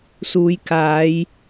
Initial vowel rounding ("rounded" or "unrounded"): rounded